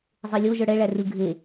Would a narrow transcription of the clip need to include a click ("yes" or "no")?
no